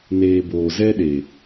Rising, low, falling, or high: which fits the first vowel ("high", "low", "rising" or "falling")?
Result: low